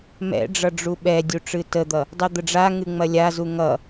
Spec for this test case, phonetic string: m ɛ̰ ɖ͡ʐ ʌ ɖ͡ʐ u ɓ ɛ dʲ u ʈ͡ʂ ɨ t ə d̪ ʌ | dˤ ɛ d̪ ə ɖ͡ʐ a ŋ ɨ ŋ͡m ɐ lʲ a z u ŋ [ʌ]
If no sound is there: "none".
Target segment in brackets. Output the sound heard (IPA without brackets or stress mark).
ʌ